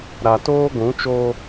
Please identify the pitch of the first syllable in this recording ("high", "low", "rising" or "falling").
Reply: low